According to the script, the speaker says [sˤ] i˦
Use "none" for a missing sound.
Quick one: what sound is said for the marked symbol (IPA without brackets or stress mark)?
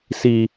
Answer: s